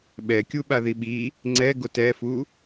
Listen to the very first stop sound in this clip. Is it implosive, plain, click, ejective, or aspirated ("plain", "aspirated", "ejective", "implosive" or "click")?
implosive